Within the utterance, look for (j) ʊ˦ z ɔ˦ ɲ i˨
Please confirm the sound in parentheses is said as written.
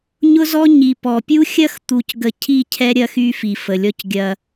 no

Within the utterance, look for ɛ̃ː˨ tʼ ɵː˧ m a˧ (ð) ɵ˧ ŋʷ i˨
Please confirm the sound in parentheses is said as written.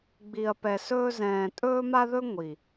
yes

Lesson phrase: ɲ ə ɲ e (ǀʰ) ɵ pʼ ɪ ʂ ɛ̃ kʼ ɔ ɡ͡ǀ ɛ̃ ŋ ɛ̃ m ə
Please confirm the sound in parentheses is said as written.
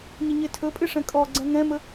no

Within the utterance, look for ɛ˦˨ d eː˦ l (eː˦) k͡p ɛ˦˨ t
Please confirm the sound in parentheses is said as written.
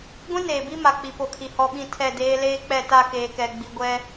yes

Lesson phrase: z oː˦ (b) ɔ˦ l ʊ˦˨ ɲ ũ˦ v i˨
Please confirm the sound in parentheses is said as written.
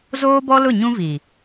yes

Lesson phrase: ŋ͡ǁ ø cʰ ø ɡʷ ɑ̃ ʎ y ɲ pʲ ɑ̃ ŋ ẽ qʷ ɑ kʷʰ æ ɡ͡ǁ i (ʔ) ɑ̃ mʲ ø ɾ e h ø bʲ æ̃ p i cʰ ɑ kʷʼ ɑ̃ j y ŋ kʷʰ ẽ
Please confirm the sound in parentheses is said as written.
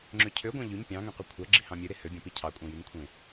no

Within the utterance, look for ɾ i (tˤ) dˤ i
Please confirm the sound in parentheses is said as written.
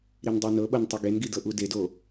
no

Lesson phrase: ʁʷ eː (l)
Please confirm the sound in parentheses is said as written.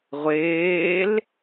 yes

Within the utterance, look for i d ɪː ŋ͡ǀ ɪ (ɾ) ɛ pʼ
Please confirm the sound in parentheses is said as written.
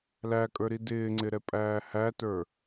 yes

